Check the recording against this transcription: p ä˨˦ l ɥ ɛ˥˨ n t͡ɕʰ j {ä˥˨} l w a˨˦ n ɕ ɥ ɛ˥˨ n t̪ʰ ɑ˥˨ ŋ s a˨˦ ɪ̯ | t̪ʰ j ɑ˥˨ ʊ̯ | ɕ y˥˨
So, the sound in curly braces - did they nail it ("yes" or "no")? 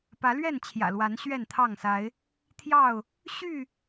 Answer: no